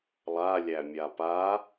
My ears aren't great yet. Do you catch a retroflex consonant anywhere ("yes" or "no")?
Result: no